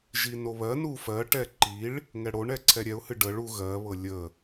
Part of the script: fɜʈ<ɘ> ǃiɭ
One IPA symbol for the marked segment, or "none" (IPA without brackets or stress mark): ɛ